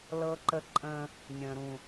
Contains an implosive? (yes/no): no